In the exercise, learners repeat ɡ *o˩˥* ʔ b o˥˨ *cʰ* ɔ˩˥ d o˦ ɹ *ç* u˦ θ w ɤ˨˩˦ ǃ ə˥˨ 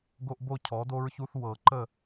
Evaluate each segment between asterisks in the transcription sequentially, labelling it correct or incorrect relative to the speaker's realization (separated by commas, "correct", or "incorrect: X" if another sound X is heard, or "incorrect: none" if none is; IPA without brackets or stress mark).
incorrect: o˦, correct, correct